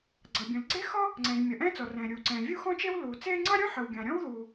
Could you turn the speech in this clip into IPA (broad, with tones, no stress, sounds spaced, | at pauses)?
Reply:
ɡ͡ǀ ʌ˩ bʲ õ˩ l ɡ͡ǀ e˥ x ɔ˥ | ŋ͡ǀ ɛ̃˩ ʒ mʲ ʌ˩ ʔ ɛ̃ː˥ t͡s ɔ˩ r ɛ̃ː˩ ɾʲ uː˩ ǀ ɛ̃ː˩ vʲ u˥ x ɔ̃˥ t͡ʃ e˥ w l uː˩ t͡s eː˥ ŋ͡ǀ ɑ˥ ɾʲ õ˥ ħ ə˩ w ɡʲ ɑ̃˩ ɾʲ ɔ̃˥ w ð uː˩